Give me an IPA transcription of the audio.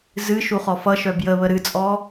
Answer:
z ɨ ʃ u χ ɔ f ʌ ʃ œ b j ə β ə ɾ ɨ t͡sʼ ɔ

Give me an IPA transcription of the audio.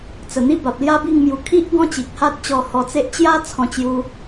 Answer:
t͡s ə˨˩ n̪ i˦ b a˨ p̚ l j a˦ b i˥˧ ŋ m j u˧ kʰ i˦ ʔ ɡ ɔ̃˦ t͡ɕ i˨ k̚ h a˦ t̚ t͡ɕ ɔ˧ h ɔ˧ t͡s e˦ ʔ t͡ɕ j a˦ t͡sʰ ɔ̃˧ t͡ɕ j u˧

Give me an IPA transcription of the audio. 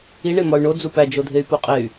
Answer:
i ɳ e m ɒ y̯ ɳ o d͡z u p æ d͡ʒ o dʱ e y̯ p o qʼ e y̯

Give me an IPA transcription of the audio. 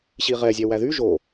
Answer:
ɕ i ʁ ɛ zʲ ɛ w æ ð y ʒ o

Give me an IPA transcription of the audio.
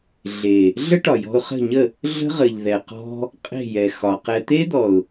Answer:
ɮ e˨ | ɮ ə˦ ʈ ɒ˨ j ɔ̤˧ ʊ̯ χ ə̤˦˨ ɲ ə˦˨ | ɮ ə̤˦ ʁ ə˨ ʎ ð ɛ˨ q ɔ̤˧ | qʼ e̤˦˨ j ɛ˨ x ɒ˨ q ɛ˧ t̪ e˦ d̪ ɔ˨ ʊ̯

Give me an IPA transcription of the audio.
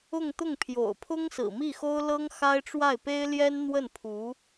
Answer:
ʊ˥˧ ŋ t̪ ʊ˥˩ ŋ pʰ j o̰˨˩ ʊ̯ pʰ ʊ˥ ŋ s ɹ̩˨˩ m i˥˩ x o˥ ʊ̯ l ɤ˥ ŋ x a˥ ɪ̯ ʈ͡ʂ w a˥˩ ɪ̯ p e˥ ɪ̯ l j ɛ˥ n n̪ w ə˥˩ n pʰ u˧˥

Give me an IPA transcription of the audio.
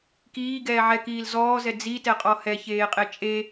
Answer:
k iː ɡ ɛː ʕ ɛ k iː l z ɔː z ɛ d͡z i t ɛ qʼ ɔ h ɛ ç eː qʼ e t͡ʃʼ e

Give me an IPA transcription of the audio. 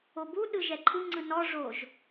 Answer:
o b u ɗ ɯ ʒ ɛ ǃʰ ɯ ŋ͡ǀ ɯ n ɔ ʐ o ʒ

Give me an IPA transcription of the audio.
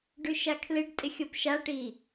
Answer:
ɖ ʉ ʃ a kʰ l ɪ ɖ tʼ ɪ xʲ o p ʃ a ʈ i

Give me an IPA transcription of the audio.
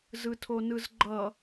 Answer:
z ɯ tʰ o n ɯ z ɡ͡ǃ ʌ

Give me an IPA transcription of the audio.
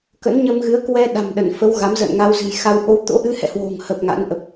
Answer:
k ə̰˧˥ n ɲ ə˧ m ɣ ɨ˨˦ ə̯ k w ɛ˧ ɗ a̤˨˩ m ɗ ə˧˩ n f ə˨˦ w ɣ a˨˦ m z ə̰ː˧˨ n ŋ a˧ w z ɨ̤˨˩ j x a˧ w ʔ o˧ w t̪ o̰˧˥ ʔ ɨ˧ h ɛ̰˧˨ h w o̤˨˩ ŋ h ə˨˩ p̚ ŋ a̰˧˥ n ʔ ə˨˩ p̚

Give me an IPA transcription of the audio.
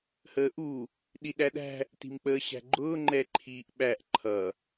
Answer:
h əː ʔ u | ɗ i ɗ æ ɗ æ̤ | t i̤ m k͡p əː ɕ æ̤ ɡ͡ǃ ʊː ŋ͡ǃ ɛ ǃʰ iː ʔ ɓ æ ʔ ǃʰ ʌ

